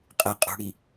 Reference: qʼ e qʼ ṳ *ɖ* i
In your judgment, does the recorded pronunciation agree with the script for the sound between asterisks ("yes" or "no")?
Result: no